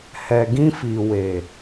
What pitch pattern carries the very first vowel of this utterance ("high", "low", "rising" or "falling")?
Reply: low